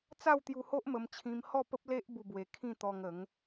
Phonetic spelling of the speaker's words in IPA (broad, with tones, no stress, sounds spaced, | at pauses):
t͡s a˥˧ w t̪ j u˧ h o˦ ʔ m ə˧ m t͡ɕʰ ĩ˧ m h ɔ˥˧ p ə˦ p̚ l e˦ ʔ b u˥˧ b w e˧ kʰ ĩ˥˧ t̪ ɔ˧ ŋ ə˨˦ ŋ